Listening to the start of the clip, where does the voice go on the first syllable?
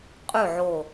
falling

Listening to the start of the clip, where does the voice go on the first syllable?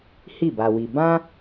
falling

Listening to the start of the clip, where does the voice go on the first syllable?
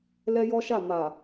high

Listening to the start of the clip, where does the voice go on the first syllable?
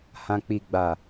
low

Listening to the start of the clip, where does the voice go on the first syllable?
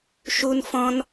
high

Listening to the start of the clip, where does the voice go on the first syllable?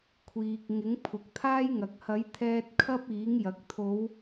low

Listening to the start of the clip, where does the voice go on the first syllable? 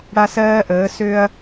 high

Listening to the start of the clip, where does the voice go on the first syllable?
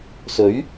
rising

